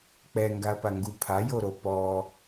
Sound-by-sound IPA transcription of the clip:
k͡p ɛ ŋ ɡ a ɐ̯ p a ŋ ɡ u pʰ a j o ɾ o p ɔ

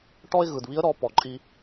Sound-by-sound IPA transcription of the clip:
ʈ ɔ˥ ɪ̯ ɣ ɯ˩ d β i˧˥ ə̯ ɾ ɔ˩˧ p ɔ˩ ǃʼ i˧

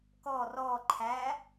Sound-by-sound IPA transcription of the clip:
k ɔ r ɔ ǃʰ æ

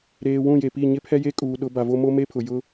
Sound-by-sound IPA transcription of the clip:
ɾ eː˨ w ũ˦˨ j e˨ p i˦˨ ɲ ɪ˦ pʰ ɛ˦ j e˦ kʼ uː˨ ɗ ʊ˨˦ b a˨ v o˦ m o˦ m e˦ pʰ ʊ˨ j ʊ˦

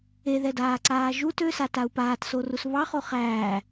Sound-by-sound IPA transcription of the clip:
e ð ɛ d aː ǀ aː ʒ u t ø s a t a u̯ p aː t s o r u s β ɑ χ o χ æː

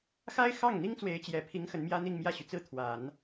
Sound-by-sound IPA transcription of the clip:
x a˥ ɪ̯ x ɑ˥˩ ŋ n̪ i˥ ŋ t͡s w e˧˥ ɪ̯ t͡ɕ j ɛ˨˩ pʰ i˧˥ ŋ x ə˧˥ n m j ä˥ n̪ i˥˧ ŋ m j ä˥˩ ɕ y˩ t͡s ɹ̩˥˩ t̪ʰ w a˨˩˦ n

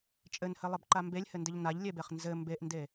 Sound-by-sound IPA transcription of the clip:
t͡ʃʼ ɘ n h ɘ lˠ ɘ b ǃ a m b e lʲ h ɘ n d ɘ ʎ n a ʎ lʲ e b e χ n z ɘ m b e ʔ n d e

